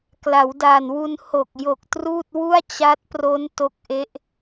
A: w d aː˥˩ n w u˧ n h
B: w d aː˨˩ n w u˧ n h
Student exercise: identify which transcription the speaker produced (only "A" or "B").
B